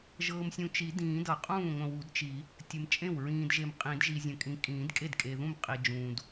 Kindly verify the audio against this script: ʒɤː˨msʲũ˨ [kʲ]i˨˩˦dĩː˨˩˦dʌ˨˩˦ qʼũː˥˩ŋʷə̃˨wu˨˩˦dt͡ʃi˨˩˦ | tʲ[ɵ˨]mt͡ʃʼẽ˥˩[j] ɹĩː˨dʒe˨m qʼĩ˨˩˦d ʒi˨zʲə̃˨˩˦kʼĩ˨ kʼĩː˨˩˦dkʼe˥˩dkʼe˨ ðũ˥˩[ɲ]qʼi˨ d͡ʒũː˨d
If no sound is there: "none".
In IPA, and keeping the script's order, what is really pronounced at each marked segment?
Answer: t͡ʃ, ə˨, w, m

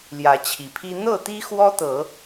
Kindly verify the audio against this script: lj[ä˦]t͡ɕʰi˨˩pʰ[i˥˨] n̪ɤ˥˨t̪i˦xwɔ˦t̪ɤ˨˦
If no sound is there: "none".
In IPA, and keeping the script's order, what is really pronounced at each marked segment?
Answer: ä˨˦, i˦

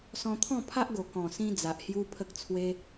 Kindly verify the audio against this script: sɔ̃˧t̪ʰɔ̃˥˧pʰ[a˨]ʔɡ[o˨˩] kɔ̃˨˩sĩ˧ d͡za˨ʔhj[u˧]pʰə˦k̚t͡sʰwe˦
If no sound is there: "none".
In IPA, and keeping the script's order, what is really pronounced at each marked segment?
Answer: a˦, o˨˩, u˦

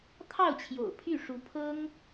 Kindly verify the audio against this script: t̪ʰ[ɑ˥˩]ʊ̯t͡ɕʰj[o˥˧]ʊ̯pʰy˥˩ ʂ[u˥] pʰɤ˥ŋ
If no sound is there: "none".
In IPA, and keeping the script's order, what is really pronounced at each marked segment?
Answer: ɑ˥˩, o̰˨˩, u˧˥

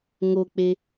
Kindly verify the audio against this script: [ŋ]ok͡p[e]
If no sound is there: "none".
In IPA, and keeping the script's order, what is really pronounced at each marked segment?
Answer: ŋ, e

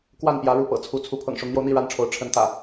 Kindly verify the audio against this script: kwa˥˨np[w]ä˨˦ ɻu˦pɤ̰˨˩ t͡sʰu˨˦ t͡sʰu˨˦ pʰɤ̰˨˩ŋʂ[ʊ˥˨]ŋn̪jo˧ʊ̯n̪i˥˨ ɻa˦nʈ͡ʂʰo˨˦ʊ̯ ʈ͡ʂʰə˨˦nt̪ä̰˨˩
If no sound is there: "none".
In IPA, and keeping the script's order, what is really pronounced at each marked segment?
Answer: j, ʊ˨˦

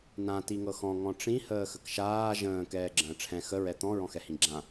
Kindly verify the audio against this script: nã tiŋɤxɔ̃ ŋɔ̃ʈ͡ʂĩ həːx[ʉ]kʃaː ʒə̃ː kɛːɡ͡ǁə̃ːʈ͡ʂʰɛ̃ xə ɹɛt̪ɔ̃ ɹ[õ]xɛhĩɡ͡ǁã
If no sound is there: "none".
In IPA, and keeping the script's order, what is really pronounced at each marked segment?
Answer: ə, ɔ̃

